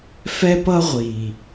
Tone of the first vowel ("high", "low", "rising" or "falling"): high